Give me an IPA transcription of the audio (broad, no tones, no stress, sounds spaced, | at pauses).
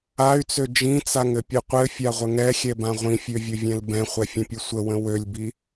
a y̯ t͡s ø d͡ʒ ĩ t͡s a ŋ ɘ pʲ ɨ qʷ ɘ fʲ a ʁʷ ə ŋ ɛ xʲ ɛ b ã ʁʷ ĩ fʲ ø vʲ ɵ vʲ ɛ̃ l b ɛ̃ χʷ ɛ fʲ ə̃ pʲ ɵ sʷ ə w ə̃ w ø lʲ b i